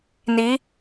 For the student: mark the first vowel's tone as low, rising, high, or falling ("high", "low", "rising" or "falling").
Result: rising